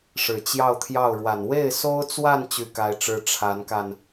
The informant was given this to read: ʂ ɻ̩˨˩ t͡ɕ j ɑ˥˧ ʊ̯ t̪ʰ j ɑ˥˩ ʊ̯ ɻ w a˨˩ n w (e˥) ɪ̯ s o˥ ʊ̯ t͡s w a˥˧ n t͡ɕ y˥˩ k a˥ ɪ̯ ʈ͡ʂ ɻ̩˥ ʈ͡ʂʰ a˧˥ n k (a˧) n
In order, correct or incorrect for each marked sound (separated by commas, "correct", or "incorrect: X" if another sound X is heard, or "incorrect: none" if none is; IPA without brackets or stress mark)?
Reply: incorrect: e˥˩, correct